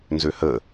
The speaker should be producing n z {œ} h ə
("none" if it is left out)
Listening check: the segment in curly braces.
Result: ø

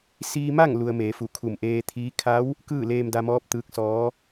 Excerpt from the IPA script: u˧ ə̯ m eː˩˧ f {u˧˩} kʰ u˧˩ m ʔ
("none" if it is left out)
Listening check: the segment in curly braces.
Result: u˧˩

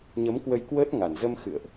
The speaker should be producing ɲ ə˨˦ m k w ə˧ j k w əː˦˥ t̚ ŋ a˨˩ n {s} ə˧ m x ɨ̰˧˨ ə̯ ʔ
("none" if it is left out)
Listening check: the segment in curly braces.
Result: z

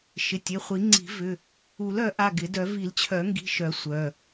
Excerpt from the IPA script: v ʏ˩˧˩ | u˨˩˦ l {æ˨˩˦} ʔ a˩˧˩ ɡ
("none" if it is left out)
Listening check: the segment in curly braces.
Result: œ˨˩˦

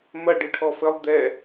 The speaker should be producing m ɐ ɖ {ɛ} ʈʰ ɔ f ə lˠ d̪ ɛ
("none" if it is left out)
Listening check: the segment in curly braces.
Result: ɨ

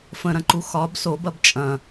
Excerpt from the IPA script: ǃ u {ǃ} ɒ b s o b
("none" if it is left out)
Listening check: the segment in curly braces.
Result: x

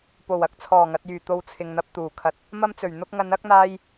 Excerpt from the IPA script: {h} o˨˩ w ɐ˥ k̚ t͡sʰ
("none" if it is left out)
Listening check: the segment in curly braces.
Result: p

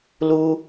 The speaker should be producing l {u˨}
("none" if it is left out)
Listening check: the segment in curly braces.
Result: u˦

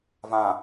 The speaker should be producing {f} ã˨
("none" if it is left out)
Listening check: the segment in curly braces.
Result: v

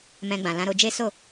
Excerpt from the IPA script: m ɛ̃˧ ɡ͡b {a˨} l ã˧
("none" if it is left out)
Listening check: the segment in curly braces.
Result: ã˨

